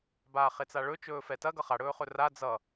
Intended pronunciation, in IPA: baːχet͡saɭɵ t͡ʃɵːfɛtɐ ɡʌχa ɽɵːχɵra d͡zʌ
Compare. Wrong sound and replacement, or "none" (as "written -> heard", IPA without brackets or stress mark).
none